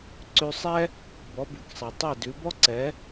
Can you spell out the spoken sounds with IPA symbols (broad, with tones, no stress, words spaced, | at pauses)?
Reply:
ǀʉ˧sˤɛ˥ | bɔ˩˥bʉ˩ksˤɛ˩ tˤɛ˥˩dʉ˩˥ bɔ˥ǀɛ˩˥